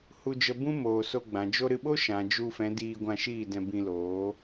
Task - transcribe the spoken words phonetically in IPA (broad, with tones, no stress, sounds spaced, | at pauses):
h u˧ d͡ʒ ə˧ b ũ˦ m oː˨ s o˧ ɡ͡b ã˨ d͡ʒ o˦ ɾ ɨ˧ ɓ o˦ ʃ ã˨ d͡ʒ u˧ f ɛ̃˨˦ d iː˧ ɡʷ ã˧ ʃ iː˦˨ d ɛ̃˧ b ĩ˧ l oː˨˦